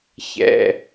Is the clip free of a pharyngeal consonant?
yes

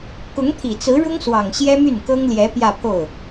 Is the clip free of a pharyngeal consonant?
yes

